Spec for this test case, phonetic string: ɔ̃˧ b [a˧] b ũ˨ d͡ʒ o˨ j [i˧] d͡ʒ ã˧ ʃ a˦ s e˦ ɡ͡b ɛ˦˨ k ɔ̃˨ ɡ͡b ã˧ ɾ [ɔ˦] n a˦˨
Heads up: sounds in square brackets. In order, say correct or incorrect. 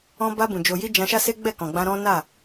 correct, correct, incorrect

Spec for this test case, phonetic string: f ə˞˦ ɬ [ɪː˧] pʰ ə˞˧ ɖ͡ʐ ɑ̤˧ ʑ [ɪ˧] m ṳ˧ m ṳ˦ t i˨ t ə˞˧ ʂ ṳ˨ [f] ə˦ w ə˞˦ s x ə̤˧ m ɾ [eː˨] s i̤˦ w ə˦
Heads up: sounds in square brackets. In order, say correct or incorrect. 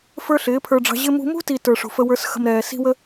incorrect, correct, correct, incorrect

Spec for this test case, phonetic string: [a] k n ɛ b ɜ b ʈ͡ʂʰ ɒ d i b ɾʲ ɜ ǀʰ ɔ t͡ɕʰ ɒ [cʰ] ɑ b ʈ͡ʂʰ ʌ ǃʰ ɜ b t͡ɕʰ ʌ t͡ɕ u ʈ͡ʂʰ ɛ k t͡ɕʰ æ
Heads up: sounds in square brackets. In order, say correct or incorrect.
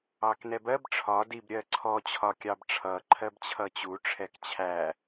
incorrect, incorrect

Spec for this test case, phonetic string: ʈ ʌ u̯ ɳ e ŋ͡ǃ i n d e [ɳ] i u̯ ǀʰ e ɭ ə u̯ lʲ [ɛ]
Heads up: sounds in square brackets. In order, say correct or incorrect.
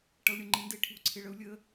incorrect, incorrect

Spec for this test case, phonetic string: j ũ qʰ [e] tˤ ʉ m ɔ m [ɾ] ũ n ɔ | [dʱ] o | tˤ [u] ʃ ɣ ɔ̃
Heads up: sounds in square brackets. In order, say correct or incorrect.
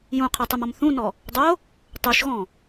correct, incorrect, incorrect, correct

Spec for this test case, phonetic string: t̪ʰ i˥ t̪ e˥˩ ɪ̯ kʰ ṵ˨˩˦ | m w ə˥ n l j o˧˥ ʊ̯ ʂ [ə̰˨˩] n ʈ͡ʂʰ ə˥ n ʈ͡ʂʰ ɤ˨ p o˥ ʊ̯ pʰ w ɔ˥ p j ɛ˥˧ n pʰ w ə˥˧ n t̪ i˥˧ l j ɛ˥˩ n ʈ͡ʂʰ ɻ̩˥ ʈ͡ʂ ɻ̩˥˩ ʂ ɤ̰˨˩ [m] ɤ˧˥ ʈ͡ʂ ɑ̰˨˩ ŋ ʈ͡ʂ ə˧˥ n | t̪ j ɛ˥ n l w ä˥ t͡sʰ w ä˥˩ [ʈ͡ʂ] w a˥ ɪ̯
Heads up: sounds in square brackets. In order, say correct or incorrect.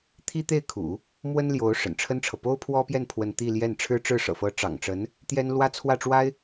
correct, incorrect, correct

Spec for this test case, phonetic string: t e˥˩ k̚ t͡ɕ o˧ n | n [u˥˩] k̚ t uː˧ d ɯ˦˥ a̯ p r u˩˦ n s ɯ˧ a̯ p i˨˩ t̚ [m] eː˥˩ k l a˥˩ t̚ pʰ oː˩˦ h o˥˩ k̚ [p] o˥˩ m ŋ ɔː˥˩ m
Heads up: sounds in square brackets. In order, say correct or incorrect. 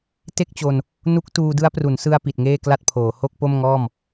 incorrect, incorrect, correct

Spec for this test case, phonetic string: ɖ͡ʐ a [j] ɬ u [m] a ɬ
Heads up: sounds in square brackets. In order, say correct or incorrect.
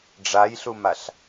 correct, correct

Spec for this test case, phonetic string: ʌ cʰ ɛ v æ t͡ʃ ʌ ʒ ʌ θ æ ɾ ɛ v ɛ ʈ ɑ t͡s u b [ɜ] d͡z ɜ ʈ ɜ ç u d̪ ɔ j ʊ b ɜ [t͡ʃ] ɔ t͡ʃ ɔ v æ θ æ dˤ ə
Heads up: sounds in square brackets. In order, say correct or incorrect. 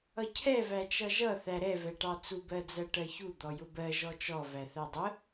correct, incorrect

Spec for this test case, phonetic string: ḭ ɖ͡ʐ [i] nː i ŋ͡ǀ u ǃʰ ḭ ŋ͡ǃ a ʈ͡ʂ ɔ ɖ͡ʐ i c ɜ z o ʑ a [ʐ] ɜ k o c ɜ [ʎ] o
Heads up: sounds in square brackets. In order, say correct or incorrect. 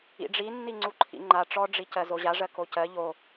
correct, correct, correct

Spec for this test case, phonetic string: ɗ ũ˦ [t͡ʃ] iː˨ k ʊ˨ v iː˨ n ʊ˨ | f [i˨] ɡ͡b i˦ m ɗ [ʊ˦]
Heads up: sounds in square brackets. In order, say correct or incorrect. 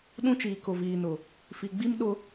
correct, correct, correct

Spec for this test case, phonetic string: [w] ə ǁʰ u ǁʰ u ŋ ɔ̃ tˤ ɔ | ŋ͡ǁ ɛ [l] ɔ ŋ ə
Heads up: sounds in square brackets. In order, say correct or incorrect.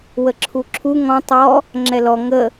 correct, correct

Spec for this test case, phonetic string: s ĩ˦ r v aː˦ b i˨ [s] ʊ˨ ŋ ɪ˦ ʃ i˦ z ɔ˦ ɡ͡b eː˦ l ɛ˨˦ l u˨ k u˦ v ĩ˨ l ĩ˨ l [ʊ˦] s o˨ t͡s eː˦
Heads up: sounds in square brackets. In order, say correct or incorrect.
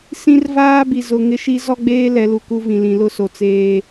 incorrect, correct

